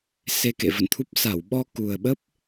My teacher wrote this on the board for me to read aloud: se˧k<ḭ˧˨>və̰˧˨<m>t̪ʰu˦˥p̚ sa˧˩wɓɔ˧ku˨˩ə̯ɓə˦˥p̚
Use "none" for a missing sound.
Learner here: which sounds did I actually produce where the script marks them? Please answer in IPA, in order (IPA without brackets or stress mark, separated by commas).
ḛ˧˨, n